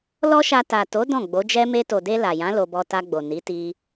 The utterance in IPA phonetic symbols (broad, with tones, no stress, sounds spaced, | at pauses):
l ɔ˦ ʃ a˧ t a˨ t o˨˦ d ɔ̃˦˨ ɡ͡b o˨˦ d͡ʒ ɛ˦ m e˧ t o˨ d e˧ l a˨ j ã˨˦ l o˧ b ɔ˧ t a˧ ɡ͡b o˨ n i˨˦ t i˧